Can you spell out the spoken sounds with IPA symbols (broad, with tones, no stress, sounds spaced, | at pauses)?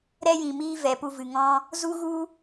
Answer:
ɾ ɛ˦ j ĩ˨ m iː˦ v ɛ˨ p u˧ v ɨ˨ ŋ ɔ̃˦ | z u˦ ɣ u˦